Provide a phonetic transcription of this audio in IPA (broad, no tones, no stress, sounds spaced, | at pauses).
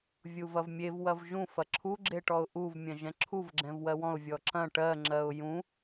vʲ u v ɐ v mʲ e v w ɐ v ʒ ũ f ɐ ǁʰ u ɡ͡ǁ e ʈ ɔ ʊ̯ ʔ u v mʲ ɐ̃ ʒ ɛ̃ ǁʰ u v ɡ͡ǁ ɛ̃ v w ɜ w ɔ̃ ʊ̯ vʲ ɔ ǁ ɐ̃ ʈ ɜ ŋ͡ǁ ɜ ʊ̯ j ũ